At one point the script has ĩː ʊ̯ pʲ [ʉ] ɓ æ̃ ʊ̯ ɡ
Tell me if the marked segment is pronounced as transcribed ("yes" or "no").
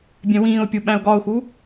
no